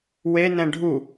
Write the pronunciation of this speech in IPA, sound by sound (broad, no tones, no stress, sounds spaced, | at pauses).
w e n ɛ̃ ɖʱ u